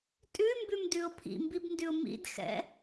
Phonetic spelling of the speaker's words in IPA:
tʼ ʉ m b ʉ m d ʉ ʊ̯ pʰ ḭ m b i b n d ʉ ʊ̯ m ḭ d x ɛ̰

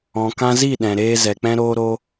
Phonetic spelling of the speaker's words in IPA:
ɔ̃˨ k ã˧ z i˦˨ ɗ ɛ̃˨ ɾ eː˧ z ɛ˨ k͡p ɛ̃˦ ɾ oː˦ ɾ o˦

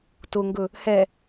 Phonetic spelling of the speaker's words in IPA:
t ʊ ŋ ɡ ɵ | h ɛ

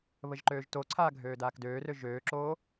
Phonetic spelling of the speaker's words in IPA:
β ə ʒ ǃ øː ʒ t o ǀʰ aː ɡʱ øː d aː k d øː r ø ʒ øː ǁ oː

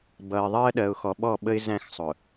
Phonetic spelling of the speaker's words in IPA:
b ʌ˨ ɪ̯ ðˤ ɜ˦ ɗ ɜ˨ ʊ̯ x ɔ˨ ɓ ɔ˦˨ ɓ ə˦ ɪ̯ z æ̃˦ x sˤ ʊ˨

